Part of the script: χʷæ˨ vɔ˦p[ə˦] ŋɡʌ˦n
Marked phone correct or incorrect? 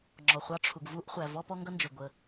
incorrect